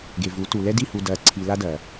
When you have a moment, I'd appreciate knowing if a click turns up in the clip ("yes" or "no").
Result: yes